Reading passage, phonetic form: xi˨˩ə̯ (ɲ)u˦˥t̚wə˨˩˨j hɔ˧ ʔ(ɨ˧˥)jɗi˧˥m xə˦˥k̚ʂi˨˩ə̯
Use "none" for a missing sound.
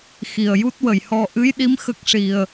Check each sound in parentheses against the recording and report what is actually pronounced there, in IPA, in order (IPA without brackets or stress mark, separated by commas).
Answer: j, ɨ˧˥